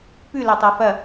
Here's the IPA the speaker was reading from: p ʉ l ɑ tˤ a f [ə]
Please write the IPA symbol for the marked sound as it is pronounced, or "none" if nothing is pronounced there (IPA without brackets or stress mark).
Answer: ɐ